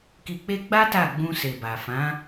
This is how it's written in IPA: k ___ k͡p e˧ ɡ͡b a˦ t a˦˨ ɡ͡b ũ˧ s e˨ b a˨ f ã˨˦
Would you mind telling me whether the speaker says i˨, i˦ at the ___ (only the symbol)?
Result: i˨